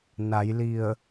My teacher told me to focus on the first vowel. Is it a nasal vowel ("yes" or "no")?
no